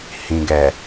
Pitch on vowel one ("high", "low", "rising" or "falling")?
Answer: low